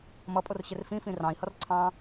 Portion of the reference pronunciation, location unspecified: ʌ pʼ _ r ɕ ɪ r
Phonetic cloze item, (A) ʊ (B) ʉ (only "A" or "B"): A